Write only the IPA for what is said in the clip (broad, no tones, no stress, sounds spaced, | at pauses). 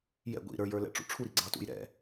j ɛ̰ ɡʷ ḭ ɾ ə˞ j ə˞ l ɛ̰ ʈ͡ʂ ṵ ʈ͡ʂʰ u ɾ i ɡ͡ǀ ɑ t ṵ j ɾ ɛ̰